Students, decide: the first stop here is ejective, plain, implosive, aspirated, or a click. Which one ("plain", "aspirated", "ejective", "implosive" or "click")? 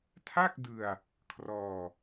aspirated